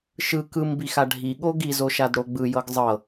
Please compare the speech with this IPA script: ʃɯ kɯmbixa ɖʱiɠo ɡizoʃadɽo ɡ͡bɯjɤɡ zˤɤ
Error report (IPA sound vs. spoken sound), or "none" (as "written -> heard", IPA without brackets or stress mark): none